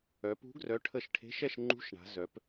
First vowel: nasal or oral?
oral